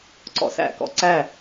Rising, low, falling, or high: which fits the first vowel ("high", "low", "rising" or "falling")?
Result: low